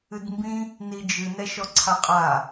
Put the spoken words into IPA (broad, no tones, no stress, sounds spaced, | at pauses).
ɨ d m b ĩ | n i d͡ʒ ɨ n ɛ ʃ ɔ ǀʰ a qʼ a